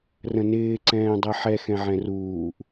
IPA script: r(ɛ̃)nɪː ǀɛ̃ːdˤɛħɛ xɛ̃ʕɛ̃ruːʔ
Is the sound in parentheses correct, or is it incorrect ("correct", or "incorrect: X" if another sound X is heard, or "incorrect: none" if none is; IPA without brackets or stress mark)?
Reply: incorrect: ə̃